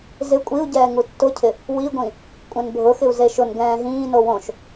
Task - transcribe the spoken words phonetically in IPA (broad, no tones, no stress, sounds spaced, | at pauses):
z ɪ kʷʼ i u̯ ɟ ɛː ŋ u tː ʊ cʰ ɪ | w i ɡʷ ĩ | kʷʼ ɛ̃ n bʱ ʊ x ɪ u̯ z e ʃ ʊ n ɡ ɛ̃ː ɦ ĩː n o w õ ʃ